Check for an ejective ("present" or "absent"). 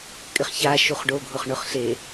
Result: present